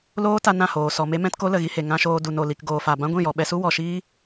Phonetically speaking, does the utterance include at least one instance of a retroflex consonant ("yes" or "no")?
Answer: no